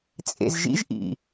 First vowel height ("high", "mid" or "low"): mid